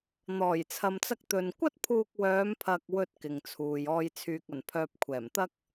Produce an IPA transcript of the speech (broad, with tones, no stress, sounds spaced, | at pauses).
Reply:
n̪ ɔː˨˩ j t͡sʰ ɐ˨ m t͡s ɐ˧ k̚ t̪ ɵ˨ n kʷ ɐ˥ t̚ pʰ uː˧ k̚ w œː˨˧ m pʰ ɐ˨ k̚ w ɵ˧ t̚ k ɪ˨ ŋ t͡sʰ uː˨ j ɔː˨ j t͡sʰ yː˨ k̚ ɐ˨˩ n pʰ œː˨ p̚ kʷʰ ɛː˨˩ m t̪ ɐ˥ k̚